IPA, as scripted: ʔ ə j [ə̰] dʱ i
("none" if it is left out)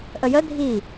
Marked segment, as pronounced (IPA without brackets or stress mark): ə